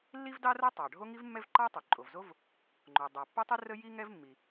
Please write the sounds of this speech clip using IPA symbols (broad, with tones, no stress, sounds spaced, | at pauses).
lː i˥ v d ɑ˥ r o˥ tˤ ɑ˩ ɖʱ o˥ ŋ i˥ v mː ɛ˥ v ǃ ɑ˥ tˤ o˩ ǃʼ o˩ v z o˥ v | ŋ͡ǃ o˩ dˤ ɑ˩ pː o˥ tˤ i˥ r ə˥ j i˥ ŋ ɛ˥ v mː i˩